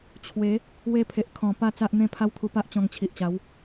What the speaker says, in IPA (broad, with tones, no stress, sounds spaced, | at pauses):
t͡ɕʰ w e˨˦ | w e˧ pʰ e˨ ʔ kʰ ɔ̃˨˩ p a˥˧ t͡s a˦ ʔ n̪ ẽ˦ pʰ a˦ w t̪ʰ u˧ p a˦ ʔ t͡ɕ ɔ̃˧ ŋ t͡ɕʰ i˨ ʔ t͡ɕ a˨˦ w